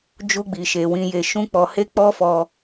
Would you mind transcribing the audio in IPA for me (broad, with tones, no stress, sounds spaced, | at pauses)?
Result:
d͡ʒ u˧ ɡ͡b i˨ ʃ e˨ w ĩ˧ j e˧ ʃ ũ˦ k͡p ɔ˧ h e˦ k͡p ɔ˦ f ɔ˧